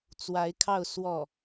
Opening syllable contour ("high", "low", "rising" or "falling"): rising